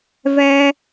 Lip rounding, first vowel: unrounded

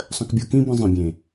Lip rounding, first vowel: unrounded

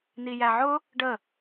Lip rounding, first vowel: unrounded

